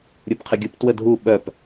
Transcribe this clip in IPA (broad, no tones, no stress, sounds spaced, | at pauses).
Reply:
ɾʲ u p qʰ ɪ ɡʲ u p t w ə dʱ u ɓ œ p